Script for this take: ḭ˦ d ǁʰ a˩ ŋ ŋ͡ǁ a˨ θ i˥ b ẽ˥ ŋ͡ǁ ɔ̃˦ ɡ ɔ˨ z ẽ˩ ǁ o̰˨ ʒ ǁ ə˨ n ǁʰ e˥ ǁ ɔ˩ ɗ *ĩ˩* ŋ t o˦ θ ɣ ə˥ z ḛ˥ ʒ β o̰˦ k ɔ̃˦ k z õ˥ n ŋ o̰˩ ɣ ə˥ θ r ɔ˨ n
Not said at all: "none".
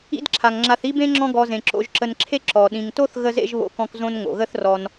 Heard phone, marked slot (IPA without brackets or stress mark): ĩ˩